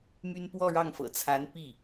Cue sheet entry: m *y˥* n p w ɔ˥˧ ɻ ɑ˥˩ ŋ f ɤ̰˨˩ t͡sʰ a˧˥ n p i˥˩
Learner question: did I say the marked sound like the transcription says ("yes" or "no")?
yes